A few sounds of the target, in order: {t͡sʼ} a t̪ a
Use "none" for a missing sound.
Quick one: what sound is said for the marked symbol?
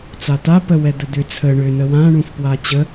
t͡s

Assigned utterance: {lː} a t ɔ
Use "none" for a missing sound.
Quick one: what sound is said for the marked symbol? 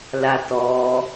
l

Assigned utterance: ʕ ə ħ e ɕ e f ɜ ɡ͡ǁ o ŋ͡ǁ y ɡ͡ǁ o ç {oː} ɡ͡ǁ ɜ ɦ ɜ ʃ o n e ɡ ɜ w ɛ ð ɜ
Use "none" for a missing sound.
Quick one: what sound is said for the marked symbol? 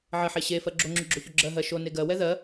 o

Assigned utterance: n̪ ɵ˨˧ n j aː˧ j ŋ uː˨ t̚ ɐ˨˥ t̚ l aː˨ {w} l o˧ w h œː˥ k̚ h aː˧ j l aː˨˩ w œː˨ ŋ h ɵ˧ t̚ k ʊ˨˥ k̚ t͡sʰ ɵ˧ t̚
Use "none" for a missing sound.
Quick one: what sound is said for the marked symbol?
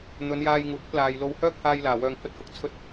j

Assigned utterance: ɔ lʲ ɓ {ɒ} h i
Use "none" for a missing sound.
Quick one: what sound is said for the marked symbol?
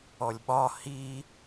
ɒ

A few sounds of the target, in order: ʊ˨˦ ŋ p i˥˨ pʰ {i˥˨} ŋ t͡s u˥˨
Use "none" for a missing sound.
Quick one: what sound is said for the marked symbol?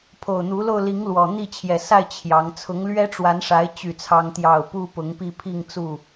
i˥˨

